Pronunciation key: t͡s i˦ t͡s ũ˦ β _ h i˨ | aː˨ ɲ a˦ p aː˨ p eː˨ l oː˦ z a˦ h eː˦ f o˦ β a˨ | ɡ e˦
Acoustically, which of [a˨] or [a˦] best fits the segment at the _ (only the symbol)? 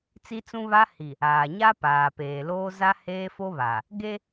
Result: a˦